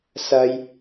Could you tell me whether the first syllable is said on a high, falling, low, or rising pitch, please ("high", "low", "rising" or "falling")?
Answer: high